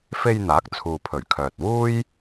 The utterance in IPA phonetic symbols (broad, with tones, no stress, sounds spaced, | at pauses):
f e˧ j n̪ aː˨˥ k̚ t͡sʰ uː˨ pʰ ɵ˨˩ ɥ kʰ œː˨ t̚ w uː˥ j